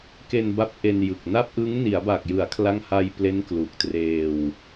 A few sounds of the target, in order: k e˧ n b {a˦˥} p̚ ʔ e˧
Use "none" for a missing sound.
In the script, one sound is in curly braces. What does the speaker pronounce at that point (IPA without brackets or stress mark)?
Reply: a˦˥